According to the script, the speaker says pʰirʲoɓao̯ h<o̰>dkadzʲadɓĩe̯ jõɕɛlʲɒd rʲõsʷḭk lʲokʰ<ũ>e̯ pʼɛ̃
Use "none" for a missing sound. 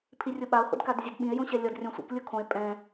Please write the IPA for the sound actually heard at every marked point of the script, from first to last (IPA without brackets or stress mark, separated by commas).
o̰, õ